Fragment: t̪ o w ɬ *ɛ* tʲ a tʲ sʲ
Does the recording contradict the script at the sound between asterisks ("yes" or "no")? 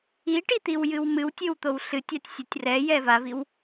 yes